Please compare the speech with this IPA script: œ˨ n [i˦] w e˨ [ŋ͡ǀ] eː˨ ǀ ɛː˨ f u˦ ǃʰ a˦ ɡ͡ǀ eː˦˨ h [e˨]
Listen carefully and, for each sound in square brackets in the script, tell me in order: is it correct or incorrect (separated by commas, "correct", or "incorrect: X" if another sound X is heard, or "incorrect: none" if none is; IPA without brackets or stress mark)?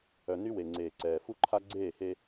incorrect: y˦, correct, incorrect: e˦